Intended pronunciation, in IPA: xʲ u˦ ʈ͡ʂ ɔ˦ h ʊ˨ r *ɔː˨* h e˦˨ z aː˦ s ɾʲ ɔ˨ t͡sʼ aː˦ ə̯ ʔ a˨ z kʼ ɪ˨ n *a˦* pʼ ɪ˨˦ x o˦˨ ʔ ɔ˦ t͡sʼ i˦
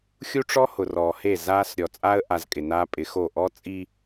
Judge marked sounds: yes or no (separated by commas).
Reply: yes, no